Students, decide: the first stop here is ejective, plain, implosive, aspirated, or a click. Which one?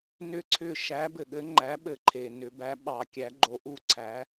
click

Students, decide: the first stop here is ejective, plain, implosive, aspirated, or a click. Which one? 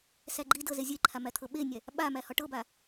click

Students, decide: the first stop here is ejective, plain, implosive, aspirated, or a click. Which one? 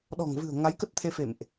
implosive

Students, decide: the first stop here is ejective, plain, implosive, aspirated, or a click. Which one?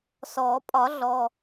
ejective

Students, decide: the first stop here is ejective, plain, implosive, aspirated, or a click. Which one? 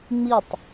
plain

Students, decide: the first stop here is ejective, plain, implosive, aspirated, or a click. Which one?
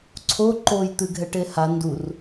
click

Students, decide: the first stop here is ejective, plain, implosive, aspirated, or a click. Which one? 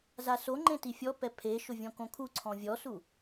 click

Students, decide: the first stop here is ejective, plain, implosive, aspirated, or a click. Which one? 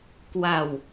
plain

